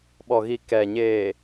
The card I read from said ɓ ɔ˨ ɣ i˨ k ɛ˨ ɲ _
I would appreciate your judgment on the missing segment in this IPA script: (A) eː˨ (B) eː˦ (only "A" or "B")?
A